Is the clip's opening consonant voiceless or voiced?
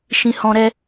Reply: voiceless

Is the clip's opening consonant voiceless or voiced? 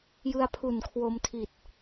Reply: voiced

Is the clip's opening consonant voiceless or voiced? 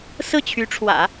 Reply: voiceless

